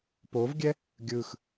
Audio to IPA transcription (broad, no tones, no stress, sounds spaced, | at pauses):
p o v ɡʲ ɛ | ɡʲ ɯ x